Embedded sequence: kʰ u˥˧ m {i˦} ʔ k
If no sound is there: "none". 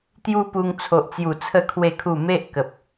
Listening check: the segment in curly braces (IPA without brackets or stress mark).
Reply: e˦